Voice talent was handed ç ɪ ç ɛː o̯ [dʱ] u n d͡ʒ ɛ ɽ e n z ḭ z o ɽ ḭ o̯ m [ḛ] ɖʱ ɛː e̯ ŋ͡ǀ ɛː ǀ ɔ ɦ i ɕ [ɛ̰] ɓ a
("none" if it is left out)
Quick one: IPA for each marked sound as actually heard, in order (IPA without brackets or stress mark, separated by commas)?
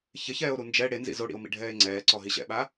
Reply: ɾ, ḭ, ɛ̰